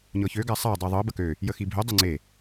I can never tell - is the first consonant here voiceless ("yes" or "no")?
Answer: no